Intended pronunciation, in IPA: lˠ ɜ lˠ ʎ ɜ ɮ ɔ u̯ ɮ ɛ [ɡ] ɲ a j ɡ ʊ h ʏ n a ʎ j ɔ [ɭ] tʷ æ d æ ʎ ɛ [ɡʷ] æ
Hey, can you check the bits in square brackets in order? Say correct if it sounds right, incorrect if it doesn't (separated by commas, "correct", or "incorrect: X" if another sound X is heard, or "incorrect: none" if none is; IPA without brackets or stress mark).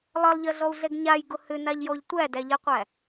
correct, incorrect: ʎ, incorrect: qʷ